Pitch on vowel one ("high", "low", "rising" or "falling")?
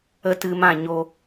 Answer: high